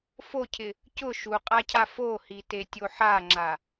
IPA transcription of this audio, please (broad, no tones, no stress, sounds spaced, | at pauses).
f o cʰ ɪ | c ʊ ʃ u qʼ a cʰ a f o h i t e tʲ o ħ a ŋ͡ǁ a